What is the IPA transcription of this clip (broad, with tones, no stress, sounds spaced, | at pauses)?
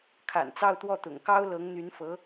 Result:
kʰ a̰˨˩ n t͡s ɑ˥˧ ʊ̯ t̪ w ɔ˥˩ t̪ ʊ̰˨˩ ŋ k ɑ˥ ʊ̯ l ɤ˧˥ ŋ n̪ y˧˥ n f ɤ˧˥